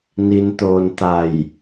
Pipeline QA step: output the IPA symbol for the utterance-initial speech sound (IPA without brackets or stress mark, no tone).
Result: n